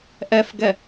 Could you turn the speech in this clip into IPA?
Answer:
ʔɛfɡɛ

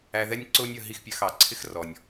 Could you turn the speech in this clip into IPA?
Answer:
æ˨ðɛ˦nʲ ǀʊː˥nʲʌ˨ ɦi˦xpʲɜ˨xɑ˩ ǀʰɪ˥xrɔ˩nʲ

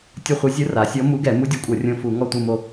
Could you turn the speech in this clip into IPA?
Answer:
tʲɯ˦˨χʷɯ˧˥ zʲɯ˧˥ra˩˧sʲɔ˧˥ mu˧˥ɡɛ˧˩˧ mu˧˥dʲɯ˧˩˧kʷʼɤ˧˩˧ rʲõ˦˨fu˧˩˧ ŋɔ˦˨tʷɯ˦˨mo˦˨

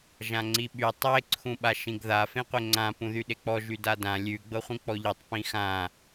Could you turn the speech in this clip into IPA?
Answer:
ʒãŋ͡ǀiɓy tˤe ǀʰũɓaʃĩɡða fẽqʷeŋ͡ǀã pũðyɗek͡pɔ ʒydadã lʲʉ ɡ͡bɤχʷĩk͡pɔʎitˤ pĩxã

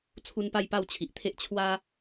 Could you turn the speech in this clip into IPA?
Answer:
t͡sʰu˦npa˥˧jpa˥˧w t͡ɕʰi˨ʔt̪ʰe˦ʔ t͡ɕʰwa˦

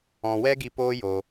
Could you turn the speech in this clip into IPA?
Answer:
ɔ̃˧ wɛ˦ɡi˧ poː˦ jo˧

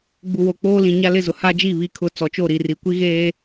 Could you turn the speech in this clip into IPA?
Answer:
ɡ͡bu˨wo˨k͡poː˦lĩ˨ ɲa˦lɪ˦˨zʊ˨ ha˦d͡ʒi˦˨ βi˨kʰʊ˨ t͡sɔ˨t͡ʃo˦˨ɾi˨ri˨ kʷi˦ɣeː˦

